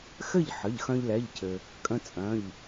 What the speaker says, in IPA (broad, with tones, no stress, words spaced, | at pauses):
xɘ˥˨ʎħə˩˧˩ʎxœ̃˧ʎ lɛ˩˧˩ʎcʰɘ˩ | kʼə̃˧ t͡sʼœ̃˩˧˩ʎ